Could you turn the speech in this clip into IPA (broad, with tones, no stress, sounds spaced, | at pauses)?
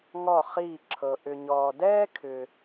ŋ ɔ˦˨ χ iː˦˨ ǁʰ ɤ˨ ʔ ʏ˨ ɲ ɔː˨ d ɛː˥ kʰ ʏ˨